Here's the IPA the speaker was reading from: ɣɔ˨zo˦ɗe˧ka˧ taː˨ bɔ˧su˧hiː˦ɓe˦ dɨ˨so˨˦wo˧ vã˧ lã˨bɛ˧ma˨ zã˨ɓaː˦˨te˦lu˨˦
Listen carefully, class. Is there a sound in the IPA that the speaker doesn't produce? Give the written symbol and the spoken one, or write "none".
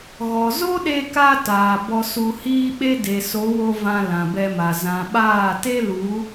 ɨ˨ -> e˨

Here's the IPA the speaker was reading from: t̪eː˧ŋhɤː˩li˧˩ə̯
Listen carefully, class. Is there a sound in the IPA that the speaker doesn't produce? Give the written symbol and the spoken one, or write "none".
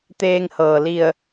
none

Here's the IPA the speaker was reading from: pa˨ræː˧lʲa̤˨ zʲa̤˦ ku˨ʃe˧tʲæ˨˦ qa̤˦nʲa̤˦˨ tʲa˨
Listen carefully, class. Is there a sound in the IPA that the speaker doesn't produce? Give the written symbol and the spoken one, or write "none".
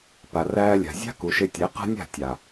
none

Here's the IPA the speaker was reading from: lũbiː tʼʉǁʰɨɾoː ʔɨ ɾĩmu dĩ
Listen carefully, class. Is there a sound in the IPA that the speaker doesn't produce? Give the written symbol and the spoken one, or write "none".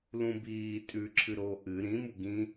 d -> ɡ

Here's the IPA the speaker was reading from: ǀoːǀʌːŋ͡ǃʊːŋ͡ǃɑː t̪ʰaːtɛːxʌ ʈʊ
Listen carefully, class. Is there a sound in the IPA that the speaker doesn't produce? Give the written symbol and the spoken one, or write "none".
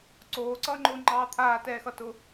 ʈ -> t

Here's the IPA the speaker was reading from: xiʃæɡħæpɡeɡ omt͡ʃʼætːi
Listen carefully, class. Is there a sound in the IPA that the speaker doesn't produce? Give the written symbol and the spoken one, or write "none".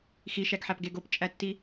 m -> p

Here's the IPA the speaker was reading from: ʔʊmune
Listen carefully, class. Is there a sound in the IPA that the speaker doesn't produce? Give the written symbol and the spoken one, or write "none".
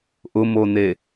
u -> o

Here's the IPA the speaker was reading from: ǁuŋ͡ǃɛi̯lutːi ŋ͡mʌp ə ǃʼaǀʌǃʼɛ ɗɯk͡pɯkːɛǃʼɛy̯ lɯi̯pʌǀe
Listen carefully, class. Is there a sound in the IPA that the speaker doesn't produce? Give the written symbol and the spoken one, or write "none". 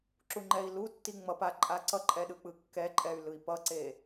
ə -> a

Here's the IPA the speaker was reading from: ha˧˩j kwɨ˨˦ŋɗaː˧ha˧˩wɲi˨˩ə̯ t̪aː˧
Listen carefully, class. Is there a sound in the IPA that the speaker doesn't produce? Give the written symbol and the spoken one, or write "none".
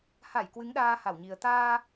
none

